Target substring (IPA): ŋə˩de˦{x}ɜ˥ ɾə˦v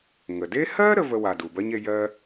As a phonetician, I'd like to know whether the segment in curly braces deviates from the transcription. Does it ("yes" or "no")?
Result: yes